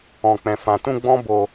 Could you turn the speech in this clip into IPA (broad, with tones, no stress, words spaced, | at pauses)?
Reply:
ɔ̃˨k͡pɛ̃˨fã˨tũ˧ ɡ͡bɔ̃˦bo˧